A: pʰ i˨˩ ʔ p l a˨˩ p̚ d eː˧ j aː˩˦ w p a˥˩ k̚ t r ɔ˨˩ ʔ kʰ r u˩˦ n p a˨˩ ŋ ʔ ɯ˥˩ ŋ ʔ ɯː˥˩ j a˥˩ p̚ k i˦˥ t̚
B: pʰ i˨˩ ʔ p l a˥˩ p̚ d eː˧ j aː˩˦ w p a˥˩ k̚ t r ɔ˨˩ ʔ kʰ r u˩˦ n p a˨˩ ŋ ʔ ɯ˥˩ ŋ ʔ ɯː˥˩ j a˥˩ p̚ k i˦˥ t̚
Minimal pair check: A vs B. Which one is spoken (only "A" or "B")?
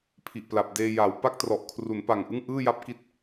A